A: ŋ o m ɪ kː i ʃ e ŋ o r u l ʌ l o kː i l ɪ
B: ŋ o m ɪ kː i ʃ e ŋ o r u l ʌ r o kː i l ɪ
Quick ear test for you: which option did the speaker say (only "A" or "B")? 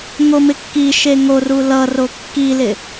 B